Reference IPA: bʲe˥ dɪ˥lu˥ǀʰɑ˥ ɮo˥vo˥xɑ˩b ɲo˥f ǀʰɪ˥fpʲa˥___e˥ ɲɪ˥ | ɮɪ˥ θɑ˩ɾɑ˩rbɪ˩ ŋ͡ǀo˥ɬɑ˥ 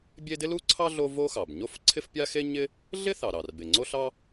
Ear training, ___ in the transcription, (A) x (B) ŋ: A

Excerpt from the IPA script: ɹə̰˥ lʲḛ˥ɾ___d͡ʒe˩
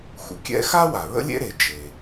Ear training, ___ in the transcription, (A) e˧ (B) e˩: B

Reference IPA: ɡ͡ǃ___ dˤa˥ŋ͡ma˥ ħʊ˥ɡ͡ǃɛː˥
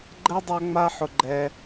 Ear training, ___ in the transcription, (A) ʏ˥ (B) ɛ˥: B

